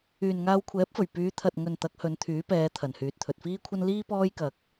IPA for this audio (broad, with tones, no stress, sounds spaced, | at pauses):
yː˨ n ŋ aː˧ w kʷʰ ɛː˨˥ p̚ f ɵ˨˩ ɥ p yː˨˧ t̪ʰ ɐ˨ t̚ ŋ ɵ˨ n t̪ ɐ˨˥ k̚ h ɵ˨˧ n t̪ʰ yː˨˥ p ɛː˨˧ t̪ʰ ɐ˨˩ n h yː˨ t̚ t̪ʰ ɵ˨ t̚ f iː˥ kʷʰ ɐ˥ n l iː˥ p ɔː˥ j k ɐ˨ k̚